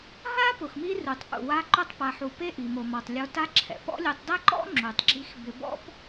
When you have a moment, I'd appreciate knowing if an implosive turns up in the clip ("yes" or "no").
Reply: no